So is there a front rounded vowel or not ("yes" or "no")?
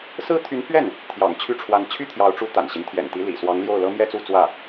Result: yes